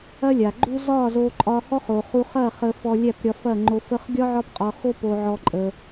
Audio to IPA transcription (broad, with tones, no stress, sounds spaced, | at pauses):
ɐ˦ lʲ a˨ ɡ͡ǃ u˦ z ɒ˦˨ z o˧ ǃʼ ɒ˧ h ɔ˦ χ o˨ χ u˧ χ ɐ˦˨ χ ə˧ f ɔ˧ lʲ æ˦˨ p ɾʲ ɒ˧ f ɐ˦˨ ŋ͡ǃ o˧ f ə˧ χ ɡʲ ɒ˦ ʕ ɒ˦ p qʼ ɒ˧ x o˦ p o˧ ʕ ɔ˧ ǃʼ ə˧